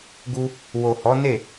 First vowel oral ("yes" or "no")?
yes